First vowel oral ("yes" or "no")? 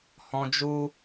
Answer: no